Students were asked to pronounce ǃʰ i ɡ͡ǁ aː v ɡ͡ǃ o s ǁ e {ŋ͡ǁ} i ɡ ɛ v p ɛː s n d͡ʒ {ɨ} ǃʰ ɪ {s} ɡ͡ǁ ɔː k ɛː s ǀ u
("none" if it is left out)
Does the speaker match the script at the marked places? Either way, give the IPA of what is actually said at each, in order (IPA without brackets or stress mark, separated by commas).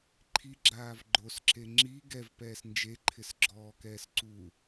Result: ŋ͡ǁ, e, s